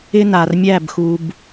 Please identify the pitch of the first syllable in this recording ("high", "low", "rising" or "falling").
high